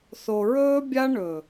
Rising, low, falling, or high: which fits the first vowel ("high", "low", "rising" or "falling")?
low